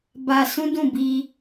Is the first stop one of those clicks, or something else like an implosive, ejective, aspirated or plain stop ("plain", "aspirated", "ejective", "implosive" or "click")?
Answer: plain